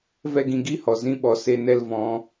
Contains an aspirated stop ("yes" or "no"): no